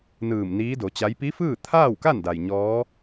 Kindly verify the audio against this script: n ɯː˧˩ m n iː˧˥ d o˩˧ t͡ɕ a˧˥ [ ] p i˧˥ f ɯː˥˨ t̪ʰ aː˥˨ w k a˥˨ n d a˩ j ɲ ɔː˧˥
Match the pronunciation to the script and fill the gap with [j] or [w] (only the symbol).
j